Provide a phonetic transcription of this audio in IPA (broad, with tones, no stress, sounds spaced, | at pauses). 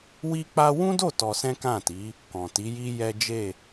w i˦ k͡p a˦ w ũ˦ d o˦˨ t ɔ˧ s ɛ̃˦ k ã˦˨ t i˨˦ | k ɔ̃˨ t i˨˦ j i˦ j ɛ˦ d͡ʒ e˦˨